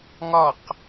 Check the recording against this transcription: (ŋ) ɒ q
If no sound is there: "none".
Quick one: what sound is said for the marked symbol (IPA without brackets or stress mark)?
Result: ŋ